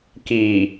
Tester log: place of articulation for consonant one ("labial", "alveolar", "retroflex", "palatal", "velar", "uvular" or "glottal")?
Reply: velar